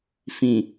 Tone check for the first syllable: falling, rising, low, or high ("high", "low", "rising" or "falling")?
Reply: low